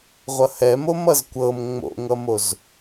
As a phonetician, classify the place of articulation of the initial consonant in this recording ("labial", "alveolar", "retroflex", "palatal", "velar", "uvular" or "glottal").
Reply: uvular